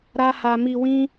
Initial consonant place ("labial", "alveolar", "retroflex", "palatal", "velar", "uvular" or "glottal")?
alveolar